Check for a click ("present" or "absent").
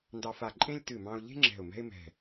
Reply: present